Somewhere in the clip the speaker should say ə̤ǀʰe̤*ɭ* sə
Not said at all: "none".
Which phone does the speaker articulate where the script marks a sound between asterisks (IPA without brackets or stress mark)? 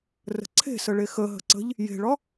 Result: none